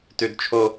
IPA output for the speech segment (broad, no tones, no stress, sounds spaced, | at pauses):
t ʉ d t͡ʃʰ o